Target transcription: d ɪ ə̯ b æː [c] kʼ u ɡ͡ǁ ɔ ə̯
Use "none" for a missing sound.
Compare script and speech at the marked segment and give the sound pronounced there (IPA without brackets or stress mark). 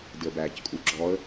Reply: c